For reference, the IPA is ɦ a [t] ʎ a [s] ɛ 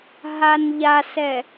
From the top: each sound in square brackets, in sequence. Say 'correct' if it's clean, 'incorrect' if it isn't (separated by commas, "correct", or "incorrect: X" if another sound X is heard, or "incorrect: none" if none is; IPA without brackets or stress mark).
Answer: incorrect: n, correct